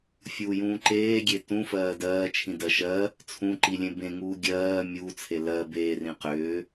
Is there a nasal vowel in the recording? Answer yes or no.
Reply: yes